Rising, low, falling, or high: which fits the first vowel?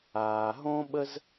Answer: low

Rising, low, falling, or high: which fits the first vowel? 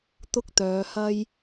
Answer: high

